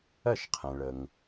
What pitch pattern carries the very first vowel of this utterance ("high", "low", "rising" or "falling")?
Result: falling